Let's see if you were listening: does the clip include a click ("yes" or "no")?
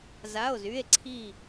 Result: yes